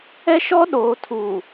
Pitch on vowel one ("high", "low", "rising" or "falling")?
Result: high